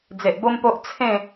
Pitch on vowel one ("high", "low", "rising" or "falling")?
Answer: low